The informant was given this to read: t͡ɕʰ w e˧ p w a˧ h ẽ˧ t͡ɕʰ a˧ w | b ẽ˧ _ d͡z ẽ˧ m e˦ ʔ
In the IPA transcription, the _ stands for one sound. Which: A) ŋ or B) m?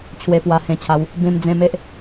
B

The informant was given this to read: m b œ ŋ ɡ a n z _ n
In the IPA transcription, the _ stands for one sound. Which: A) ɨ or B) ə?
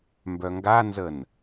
B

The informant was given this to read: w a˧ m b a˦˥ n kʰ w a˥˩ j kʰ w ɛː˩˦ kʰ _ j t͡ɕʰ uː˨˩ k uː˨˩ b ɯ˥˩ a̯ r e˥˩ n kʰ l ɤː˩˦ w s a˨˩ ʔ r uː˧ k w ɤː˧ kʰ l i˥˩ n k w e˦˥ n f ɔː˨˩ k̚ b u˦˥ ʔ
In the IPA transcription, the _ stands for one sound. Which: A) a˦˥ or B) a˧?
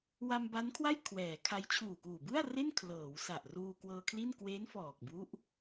A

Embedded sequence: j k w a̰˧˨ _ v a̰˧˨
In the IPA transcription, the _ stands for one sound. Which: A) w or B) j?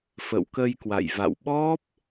B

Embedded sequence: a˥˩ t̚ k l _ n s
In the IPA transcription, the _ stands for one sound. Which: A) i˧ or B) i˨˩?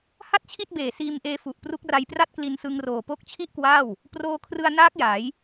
A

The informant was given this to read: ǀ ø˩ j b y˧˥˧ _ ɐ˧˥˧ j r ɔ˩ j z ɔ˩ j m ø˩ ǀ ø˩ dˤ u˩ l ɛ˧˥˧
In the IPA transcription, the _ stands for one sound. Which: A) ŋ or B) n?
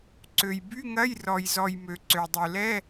A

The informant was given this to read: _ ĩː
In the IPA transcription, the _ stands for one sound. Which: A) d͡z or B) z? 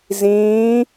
B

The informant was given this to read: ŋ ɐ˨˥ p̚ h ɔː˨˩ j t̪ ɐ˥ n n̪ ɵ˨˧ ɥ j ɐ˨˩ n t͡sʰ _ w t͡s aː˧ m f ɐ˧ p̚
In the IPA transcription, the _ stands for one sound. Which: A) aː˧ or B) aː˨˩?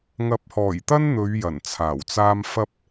B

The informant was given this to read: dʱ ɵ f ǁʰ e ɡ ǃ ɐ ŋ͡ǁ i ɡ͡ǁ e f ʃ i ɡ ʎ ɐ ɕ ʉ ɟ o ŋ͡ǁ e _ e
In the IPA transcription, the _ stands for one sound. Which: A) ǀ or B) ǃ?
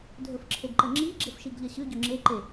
B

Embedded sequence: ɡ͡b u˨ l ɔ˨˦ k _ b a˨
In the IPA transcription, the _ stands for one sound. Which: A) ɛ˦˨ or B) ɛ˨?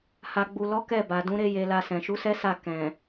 A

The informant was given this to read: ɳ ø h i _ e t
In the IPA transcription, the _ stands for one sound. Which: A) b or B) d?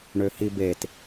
A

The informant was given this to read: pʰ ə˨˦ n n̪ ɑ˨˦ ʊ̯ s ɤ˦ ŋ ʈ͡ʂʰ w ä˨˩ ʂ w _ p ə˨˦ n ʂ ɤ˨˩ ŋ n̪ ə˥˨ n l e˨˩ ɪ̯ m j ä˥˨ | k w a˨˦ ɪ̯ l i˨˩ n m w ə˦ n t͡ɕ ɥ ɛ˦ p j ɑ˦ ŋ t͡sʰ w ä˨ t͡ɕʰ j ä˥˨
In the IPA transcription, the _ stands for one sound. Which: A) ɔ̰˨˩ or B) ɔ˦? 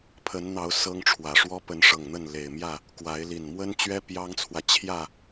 B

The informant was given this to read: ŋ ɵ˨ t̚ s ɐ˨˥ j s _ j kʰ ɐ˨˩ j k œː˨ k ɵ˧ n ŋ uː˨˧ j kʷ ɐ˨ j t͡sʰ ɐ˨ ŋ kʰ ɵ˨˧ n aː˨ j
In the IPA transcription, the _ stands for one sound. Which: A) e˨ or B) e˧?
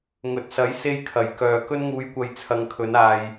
B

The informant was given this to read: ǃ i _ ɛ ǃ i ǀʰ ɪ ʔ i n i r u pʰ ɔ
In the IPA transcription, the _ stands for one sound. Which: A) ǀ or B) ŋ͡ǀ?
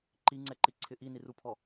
B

